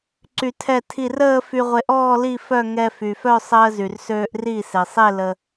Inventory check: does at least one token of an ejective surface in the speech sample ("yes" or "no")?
no